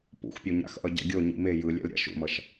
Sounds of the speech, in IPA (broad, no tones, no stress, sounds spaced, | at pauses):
p ṵ x pʲ o ɲ a̰ x ʔ ʌ ɟ a̰ ɡʲ o ɲ ḭ m e j ɯ lʲ ɛ̰ l ɾʲ a̰ ʃ ṵ m ʌ ʃ